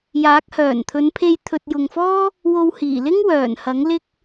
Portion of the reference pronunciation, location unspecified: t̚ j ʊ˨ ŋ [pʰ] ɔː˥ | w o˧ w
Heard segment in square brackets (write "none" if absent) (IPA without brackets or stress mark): f